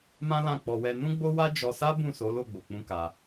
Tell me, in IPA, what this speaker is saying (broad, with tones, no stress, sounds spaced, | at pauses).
m ã˦ l ã˦˨ k͡p ɔ˧ w ɛ˧ n ũ˦ ɡ͡b o˦ w a˦ d͡ʒ ɔ˧ s a˦ b ũ˦˨ s o˨˦ l o˦˨ ɡ͡b o˨ k͡p ũ˧ k a˧